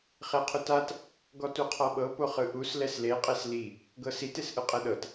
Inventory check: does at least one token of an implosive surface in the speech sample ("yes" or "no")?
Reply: yes